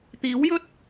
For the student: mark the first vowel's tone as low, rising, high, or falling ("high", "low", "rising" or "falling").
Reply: rising